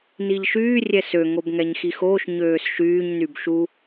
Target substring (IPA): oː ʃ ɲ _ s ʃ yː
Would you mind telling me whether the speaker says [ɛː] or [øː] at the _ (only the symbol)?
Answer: øː